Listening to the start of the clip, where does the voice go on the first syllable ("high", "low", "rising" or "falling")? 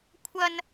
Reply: high